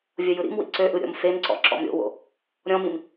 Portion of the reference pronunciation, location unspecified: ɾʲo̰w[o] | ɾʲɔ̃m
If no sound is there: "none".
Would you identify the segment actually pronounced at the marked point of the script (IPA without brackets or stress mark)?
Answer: o̰